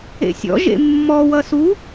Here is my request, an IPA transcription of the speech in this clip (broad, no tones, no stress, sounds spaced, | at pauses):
ḛ sʲ ɔ̰ ʒ ḛ mː ɔ w ʌ s u